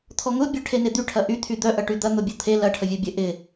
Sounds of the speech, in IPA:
t̪ʰ ɔ ŋ ʊ bʲ œ ʈʰ e n e d̪ y ʈʰ ɐ ʔ y t̪ʰ y d̪ œ ʔ ɐ ʈ y d̪ ɐ n̪ ʊ bʲ o t̪ʰ e l ɐ ʈʰ ə vʲ o bʲ ə ʔ ɪ

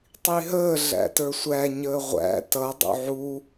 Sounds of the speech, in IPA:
tˤ i ɦ əː ɮ æ̰ t ə˞ sʷ æ ɲ əː ʁʷ æ̰ t ʌ dˤ ṵ ʕ u

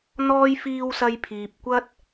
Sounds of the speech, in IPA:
n̪ ɔː˥ j f iː˧ w s ɐ˧ j pʰ iː˨ p̚ kʷ ɐ˥ t̚

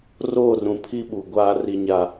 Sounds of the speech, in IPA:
r oː˦˨ r ũ˨ pʰ i˦ ɓ u˨ ɡʷ aː˦ r i˦ ɲ a˦

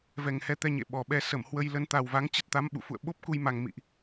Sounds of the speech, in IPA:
v ɛ˨˩ ŋ h ɛ˧ t̪ ɛ˧ ɲ ḛ˧˨ ɓ ɔ˨˩ ɓ ɛ˧ s ə˧˩ m h w ə˧ j l ə˧ n t̪ a˨˩ w v a˨˦ ŋ t͡ɕ ə˦˥ t̚ t̪ a˨˦ m ɓ ṵ˧˨ f ṵ˧˨ ə̯ ɓ o˦˥ p̚ k u˧ j m a˨˩ ŋ m ḭ˧˨ ʔ

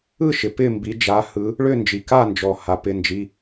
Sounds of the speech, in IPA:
ɯ˥˨ ʃ ɪ˩ p ɪ˥˨ m b i˨˦ d͡ʒ a˨˦ h ɯ˨˦ | ɭ ʏ˥˨ n d͡ʒ i˩ k a˥˨ n d͡ʒ ɔ˩ h a˩ p ɪ˩˧˩ n d͡ʒ i˩˧˩

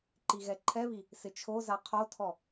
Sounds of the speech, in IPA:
ǃ i ɣ ɛ ǃʰ ɛ β i | s ɪ t͡ʃʰ o z a qʰ o tʰ ɔ

